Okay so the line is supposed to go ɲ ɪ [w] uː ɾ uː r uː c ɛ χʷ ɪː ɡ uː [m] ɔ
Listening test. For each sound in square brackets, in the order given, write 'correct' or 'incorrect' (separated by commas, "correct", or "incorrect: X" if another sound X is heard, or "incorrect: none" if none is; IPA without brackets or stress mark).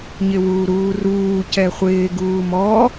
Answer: correct, correct